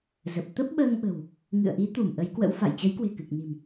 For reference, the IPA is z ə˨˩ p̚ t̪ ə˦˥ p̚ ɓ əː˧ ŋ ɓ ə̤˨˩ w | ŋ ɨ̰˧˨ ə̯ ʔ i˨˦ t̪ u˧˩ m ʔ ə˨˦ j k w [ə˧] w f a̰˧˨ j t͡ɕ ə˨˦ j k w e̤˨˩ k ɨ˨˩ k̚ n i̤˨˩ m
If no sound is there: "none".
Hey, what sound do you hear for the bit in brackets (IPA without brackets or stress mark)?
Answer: ə̰˧˥